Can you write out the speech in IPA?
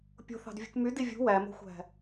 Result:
pʲ o̤ θ ɑ̤ d vʲ ṳ k m y d i vʲ ṳ w æ m o̤ xʷ æ̤

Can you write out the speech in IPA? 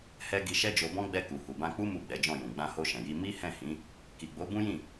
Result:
h ɛ˧ ɡ i˧ ʃ ɛ˦ d͡ʒ o˧ b ɔ̃˦ ɡ͡b ɛ˧ k u˨ h u˨ b ã˧ k͡p u˦ m u˦˨ ɡ͡b ɛ˨˦ d͡ʒ ɔ̃˦˨ j ũ˨ ɡ͡b ã˧ h o˧ ʃ ɛ̃˨ j i˧ m i˦ h ɛ̃˦˨ h ĩ˨˦ | k i˨ ɡ͡b o˨˦ b ũ˦ j ĩ˦˨

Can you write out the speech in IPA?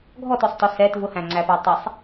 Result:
ɡʱ ɔ t ʊ sˤ t ɔ s ɛ t v ʊ h æ̃ ŋ͡ǀ æ p æ tˤ ɛ sˤ

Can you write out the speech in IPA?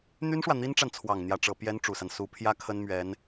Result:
n̪ y˥ n ʂ w ä˨ n̪ i˥ n ʈ͡ʂ a˨ n t͡sʰ w ɑ˨˩ ŋ n̪ j ä˥ ʈ͡ʂ ɤ˧˥ p j ɛ˥ n ʈ͡ʂ u˨˩ s a˦ n s u˧˥ pʰ j ä˥ kʰ ə˥ n m ɥ ɛ˧˥ n

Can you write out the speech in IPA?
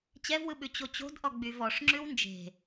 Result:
t͡ɕ ɛ v w ɯ ɓ ʉ t͡ɕ o t͡ɕ o̤ d ʔ ɔ ɡ͡b y v ɔ ʂ ŋ͡ǁ ʉ w n d͡ʒ e̤

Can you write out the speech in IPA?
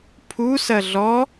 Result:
pʰ u s ɐ ɮ ɔ

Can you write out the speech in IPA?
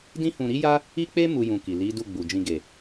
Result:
d ĩ˦ h ũ˧ ɾ i˦ j a˦ | i˦ k͡p e˦ m u˦ j ũ˧ k i˨ l i˨˦ d u˦˨ ɡ͡b u˨ d͡ʒ ĩ˧ ɡ e˨

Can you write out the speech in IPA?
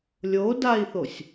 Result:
lʲ o d a i̯ θ o sʲ

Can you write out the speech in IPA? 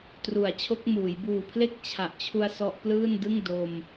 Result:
t r u˩˦ a̯ t͡ɕʰ o˦˥ k̚ m uː˩˦ j b uː˨˩ pʰ l e˥˩ k̚ t͡ɕʰ a˨˩ ʔ t͡ɕʰ u˧ a̯ s ɔ˦˥ ʔ p l ɯː˥˩ n d ɯ˥˩ ŋ d o˧ m

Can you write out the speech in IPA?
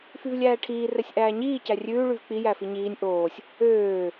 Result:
f y v lʲ æː ʈʰ iː r ɛ sʲ ʔ æː ɲ iː c æ rʲ ʉː ɭ y v k͡p i j æ f i ɲ iː nʲ ʔ oː sʲ | øː

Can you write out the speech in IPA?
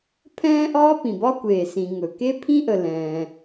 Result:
pʰ ɛ̃ː˥ ʔ ɒː˥ p ĩ˩ b ɒ˥ kʷ eː˩ s ĩ˩ ŋ ɵ˩ k e˥ pʰ ĩ˥ ʔ ə˩ l ɛ̃ː˩

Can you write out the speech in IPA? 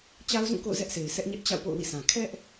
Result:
t͡ɕ a˦ ʊ̯ z ũ˦˨ k o̰˦˨ ʊ̯ z ɛ˦ ʔ sʰ e˨ ɪ̯ s ɛ˦ ʔ ɲ ɛ˦ ʔ t͡ɕ a̰˦˨ ʊ̯ p o̰˦˨ ʊ̯ w ḭ˦˨ s ã˨ kʰ ɛ˦ ʔ

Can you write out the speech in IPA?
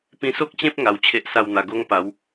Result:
p ĩ˧ s o˦ k̚ t͡ɕ ẽ˦ p̚ ŋ a˧ w t͡ɕʰ e˦ ʔ s a˥˧ w n̪ a˧ ɡ o˦ ŋ p a˨˦ w

